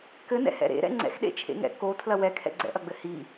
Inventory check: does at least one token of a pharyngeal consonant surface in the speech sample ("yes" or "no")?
no